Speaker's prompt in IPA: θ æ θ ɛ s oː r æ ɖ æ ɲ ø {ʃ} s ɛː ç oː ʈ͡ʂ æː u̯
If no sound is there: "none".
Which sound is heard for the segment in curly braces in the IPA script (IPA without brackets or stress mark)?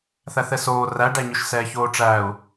ʃ